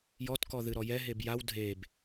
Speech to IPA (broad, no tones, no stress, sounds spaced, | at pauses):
j ɔ t k ɔ ð ɨ ɾ ɔ j ɛ ɦ e b j a w dʱ e b